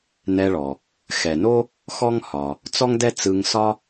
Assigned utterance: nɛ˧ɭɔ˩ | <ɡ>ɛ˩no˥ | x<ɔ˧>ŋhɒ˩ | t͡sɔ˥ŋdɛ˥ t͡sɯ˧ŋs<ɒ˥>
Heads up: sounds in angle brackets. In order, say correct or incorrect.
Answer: incorrect: x, incorrect: ɔ˥, correct

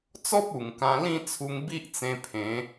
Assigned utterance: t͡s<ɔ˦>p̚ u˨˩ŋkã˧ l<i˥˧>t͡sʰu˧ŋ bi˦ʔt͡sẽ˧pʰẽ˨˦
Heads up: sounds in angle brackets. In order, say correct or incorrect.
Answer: correct, incorrect: ĩ˥˧

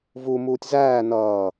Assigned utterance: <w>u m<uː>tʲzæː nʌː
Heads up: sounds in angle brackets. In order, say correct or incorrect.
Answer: incorrect: v, correct

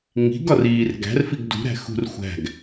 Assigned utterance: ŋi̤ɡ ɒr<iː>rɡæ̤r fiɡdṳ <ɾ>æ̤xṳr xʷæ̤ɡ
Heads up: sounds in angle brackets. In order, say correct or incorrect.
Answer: correct, correct

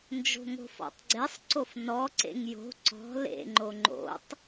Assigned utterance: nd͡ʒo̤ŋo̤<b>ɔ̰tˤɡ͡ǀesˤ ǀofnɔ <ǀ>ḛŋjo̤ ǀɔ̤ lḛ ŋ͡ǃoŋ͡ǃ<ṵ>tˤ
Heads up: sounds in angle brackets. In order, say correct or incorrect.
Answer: incorrect: f, correct, incorrect: o̰

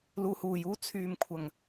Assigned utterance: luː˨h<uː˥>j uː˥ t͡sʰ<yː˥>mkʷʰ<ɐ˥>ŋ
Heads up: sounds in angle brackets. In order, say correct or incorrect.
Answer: incorrect: uː˨˩, incorrect: yː˨, incorrect: ɐ˨˩

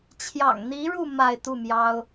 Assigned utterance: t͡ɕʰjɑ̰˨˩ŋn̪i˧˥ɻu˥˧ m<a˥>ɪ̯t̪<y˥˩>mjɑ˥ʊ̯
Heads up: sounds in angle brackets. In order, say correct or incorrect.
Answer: incorrect: a˥˧, incorrect: u˥˩

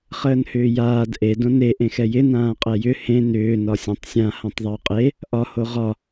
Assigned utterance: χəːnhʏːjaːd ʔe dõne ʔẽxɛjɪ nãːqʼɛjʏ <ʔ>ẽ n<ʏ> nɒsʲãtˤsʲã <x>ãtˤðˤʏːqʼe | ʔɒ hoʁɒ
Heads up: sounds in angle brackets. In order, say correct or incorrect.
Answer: incorrect: h, incorrect: ʏː, incorrect: h

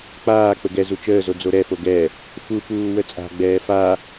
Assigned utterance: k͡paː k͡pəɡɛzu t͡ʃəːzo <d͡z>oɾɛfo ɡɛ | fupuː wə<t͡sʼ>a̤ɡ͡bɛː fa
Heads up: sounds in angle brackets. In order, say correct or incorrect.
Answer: correct, correct

